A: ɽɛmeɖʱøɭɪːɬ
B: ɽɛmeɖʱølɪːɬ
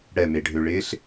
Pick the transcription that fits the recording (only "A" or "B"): A